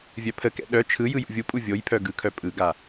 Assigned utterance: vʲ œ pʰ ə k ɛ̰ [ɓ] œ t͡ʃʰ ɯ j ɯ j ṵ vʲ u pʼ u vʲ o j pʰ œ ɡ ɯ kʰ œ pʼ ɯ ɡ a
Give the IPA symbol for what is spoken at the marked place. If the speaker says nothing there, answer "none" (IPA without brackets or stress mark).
ɗ